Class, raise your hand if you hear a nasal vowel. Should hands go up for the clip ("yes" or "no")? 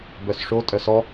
no